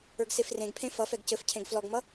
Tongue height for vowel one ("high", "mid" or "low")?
mid